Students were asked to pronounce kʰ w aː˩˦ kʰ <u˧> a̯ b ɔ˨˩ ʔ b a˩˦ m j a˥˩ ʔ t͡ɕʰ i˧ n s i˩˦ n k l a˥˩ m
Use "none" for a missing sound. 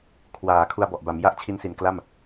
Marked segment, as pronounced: u˧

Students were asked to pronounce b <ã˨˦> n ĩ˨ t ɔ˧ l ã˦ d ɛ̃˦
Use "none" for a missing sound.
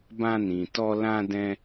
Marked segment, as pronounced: ã˧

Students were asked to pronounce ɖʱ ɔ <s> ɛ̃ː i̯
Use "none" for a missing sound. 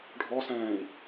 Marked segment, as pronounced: s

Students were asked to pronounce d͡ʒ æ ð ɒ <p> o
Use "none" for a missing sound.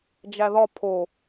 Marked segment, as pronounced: pʰ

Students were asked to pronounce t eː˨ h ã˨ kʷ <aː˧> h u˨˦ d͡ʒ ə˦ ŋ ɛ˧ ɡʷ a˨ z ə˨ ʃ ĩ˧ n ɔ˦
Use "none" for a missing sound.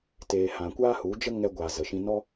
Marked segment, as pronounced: aː˦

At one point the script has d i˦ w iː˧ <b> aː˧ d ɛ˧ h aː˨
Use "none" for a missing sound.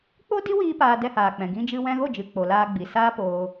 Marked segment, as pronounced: p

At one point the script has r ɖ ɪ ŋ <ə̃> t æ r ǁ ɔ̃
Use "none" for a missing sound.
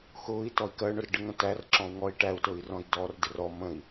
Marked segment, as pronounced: ə̃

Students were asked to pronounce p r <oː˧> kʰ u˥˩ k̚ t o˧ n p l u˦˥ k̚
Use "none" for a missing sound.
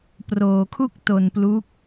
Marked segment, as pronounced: oː˧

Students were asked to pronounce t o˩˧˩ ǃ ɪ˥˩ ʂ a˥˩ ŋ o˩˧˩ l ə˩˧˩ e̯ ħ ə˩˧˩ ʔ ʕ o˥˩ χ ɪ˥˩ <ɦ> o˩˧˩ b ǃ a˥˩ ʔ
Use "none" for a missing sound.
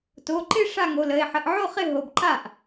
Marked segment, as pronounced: ɦ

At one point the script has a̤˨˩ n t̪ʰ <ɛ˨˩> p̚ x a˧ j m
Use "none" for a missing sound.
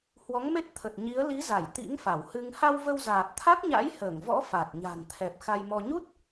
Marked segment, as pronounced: ɛ˨˩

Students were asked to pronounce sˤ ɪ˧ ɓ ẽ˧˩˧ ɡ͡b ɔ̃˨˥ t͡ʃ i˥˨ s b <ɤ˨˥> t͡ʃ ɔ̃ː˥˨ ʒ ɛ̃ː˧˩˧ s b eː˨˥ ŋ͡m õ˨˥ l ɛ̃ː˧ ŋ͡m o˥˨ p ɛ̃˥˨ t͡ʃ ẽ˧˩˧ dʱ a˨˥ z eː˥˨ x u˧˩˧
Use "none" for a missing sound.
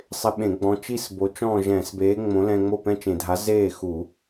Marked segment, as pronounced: o˨˥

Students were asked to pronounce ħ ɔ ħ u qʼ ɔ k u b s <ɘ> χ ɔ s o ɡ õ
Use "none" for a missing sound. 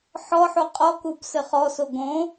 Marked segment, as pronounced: ɘ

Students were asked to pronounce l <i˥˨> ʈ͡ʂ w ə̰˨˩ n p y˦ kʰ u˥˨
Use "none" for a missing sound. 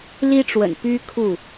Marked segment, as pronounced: i˦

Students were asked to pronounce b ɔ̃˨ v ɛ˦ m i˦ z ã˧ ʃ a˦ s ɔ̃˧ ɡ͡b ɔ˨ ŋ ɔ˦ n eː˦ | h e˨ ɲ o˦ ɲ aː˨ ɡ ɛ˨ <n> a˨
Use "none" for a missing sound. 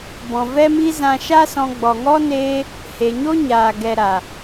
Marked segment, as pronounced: ɾ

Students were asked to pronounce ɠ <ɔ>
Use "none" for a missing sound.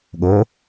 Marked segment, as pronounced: o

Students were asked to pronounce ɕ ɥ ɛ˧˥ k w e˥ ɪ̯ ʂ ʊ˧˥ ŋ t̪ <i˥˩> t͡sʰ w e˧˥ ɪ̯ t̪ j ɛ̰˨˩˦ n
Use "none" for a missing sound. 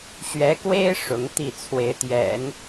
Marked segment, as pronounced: i˥˩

